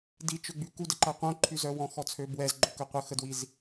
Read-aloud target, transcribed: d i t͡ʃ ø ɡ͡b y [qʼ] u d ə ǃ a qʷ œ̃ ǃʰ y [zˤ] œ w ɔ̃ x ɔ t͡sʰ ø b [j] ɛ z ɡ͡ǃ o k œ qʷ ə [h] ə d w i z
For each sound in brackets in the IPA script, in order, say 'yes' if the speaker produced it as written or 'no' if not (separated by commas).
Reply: no, no, no, no